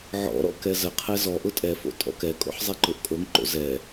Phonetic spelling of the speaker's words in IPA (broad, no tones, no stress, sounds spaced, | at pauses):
ʕ ɔ̰ ɾ ɔ̰ k ɛ z ə qʰ ɛ z ɔ ʔ ʊ tʼ ɛ f o̰ tʼ ɔ̰ k ɛ kʼ o̰ ħ zˤ ɛ ǃ ʊ ʔ kʼ o ŋ ǃ o̰ z ɛ